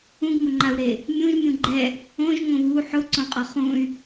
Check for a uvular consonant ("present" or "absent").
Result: present